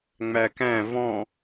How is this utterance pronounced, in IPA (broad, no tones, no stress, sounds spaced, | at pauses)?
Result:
ŋ͡m æ k æ̃ v ɔ̃